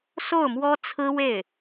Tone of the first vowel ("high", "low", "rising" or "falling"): falling